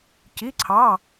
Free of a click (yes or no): no